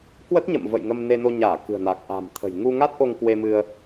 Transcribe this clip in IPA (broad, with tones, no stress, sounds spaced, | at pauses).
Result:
k w ə˦˥ t̚ ɲ ə̰˧˨ m v ə̰˧˨ j ŋ ə˧ m n e˧ n o˧ ɲ aː˧˩ k ɨ̤˨˩ ə̯ n a˨˩ k̚ ʔ a̤˨˩ m t̪ʰ ə̤˨˩ j ŋ u˧ ŋ a˦˥ t̚ ʔ o˧ ŋ k w e˧ m ɨ˧ ə̯